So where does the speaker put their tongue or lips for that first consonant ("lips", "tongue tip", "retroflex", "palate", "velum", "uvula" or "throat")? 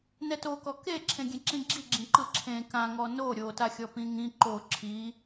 tongue tip